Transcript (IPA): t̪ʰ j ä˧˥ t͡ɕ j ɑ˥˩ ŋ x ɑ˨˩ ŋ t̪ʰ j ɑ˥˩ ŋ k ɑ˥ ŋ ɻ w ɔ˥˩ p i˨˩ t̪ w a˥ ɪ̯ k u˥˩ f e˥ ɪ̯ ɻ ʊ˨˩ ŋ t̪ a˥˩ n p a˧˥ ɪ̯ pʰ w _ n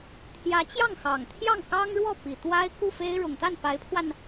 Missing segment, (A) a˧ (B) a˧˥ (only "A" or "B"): A